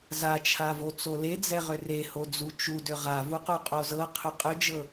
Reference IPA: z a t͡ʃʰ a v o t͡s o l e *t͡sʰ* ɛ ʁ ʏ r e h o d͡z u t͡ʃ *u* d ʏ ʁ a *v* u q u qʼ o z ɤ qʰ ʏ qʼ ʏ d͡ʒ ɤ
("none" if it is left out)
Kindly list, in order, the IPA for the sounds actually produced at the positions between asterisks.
d͡z, u, v

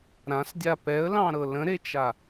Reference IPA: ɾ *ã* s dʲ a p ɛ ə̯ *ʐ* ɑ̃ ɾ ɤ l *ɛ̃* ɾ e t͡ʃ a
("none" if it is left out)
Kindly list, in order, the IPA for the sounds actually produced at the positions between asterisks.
ã, l, ə̃

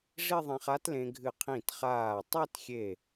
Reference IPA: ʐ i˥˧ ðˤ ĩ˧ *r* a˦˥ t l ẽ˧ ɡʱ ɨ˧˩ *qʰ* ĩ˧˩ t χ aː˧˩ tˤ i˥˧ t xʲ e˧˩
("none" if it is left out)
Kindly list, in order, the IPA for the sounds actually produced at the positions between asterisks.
χ, qʰ

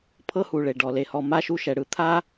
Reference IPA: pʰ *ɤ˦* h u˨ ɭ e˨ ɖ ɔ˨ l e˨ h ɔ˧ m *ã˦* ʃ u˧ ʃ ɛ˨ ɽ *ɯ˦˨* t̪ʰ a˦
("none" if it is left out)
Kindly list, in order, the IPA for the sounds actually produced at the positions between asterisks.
ɤ˦, a˦, ɯ˦

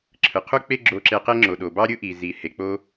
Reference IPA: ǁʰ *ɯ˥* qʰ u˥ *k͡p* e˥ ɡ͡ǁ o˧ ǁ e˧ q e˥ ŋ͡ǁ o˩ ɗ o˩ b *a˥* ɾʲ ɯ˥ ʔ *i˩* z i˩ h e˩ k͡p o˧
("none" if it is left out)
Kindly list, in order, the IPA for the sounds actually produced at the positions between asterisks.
ɯ˩, k͡p, ɑ˥, i˩

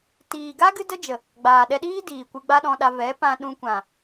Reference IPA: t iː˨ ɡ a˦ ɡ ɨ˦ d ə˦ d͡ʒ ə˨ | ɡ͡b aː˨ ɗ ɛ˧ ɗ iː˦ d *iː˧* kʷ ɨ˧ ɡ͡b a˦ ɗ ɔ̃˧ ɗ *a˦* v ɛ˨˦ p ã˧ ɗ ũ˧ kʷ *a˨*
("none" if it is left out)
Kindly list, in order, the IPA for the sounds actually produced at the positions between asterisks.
iː˨, a˧, ã˨

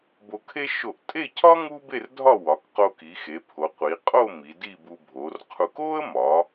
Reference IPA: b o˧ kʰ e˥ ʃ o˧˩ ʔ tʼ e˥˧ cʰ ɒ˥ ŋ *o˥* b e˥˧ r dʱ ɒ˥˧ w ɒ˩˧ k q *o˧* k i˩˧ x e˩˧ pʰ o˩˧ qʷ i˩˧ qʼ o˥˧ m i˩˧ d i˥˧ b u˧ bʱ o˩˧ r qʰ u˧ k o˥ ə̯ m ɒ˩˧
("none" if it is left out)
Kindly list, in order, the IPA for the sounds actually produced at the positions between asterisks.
u˥, o˧

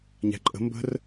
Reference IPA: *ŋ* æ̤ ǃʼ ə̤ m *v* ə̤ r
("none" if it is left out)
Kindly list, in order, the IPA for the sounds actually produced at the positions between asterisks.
ɲ, b

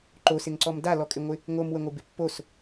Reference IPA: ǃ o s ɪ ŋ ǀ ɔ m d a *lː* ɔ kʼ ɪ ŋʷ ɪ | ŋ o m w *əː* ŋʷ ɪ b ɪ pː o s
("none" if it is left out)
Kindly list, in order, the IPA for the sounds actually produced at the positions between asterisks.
l, ə

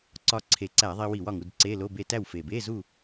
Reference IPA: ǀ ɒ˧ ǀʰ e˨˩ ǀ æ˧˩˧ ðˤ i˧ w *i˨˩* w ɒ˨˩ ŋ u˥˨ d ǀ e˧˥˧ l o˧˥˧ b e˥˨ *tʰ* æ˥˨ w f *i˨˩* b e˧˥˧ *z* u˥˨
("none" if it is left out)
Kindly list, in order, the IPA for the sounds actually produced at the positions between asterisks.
i˧˩˧, t, e˨˩, z

